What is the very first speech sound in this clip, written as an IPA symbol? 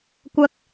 kʷ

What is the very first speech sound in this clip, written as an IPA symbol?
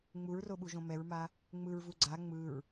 ŋ͡m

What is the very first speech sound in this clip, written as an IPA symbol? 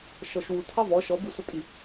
ʃ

